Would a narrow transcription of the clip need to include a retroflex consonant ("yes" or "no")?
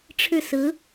yes